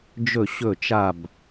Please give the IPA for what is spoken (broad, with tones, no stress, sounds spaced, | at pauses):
d͡ʒ ɵ˥˨ ɕ ɵ˥˨ t͡ʃ a˥˨ b